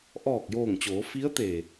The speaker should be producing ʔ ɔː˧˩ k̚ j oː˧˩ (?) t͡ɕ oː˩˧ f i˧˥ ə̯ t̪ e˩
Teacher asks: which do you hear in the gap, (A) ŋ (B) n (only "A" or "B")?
A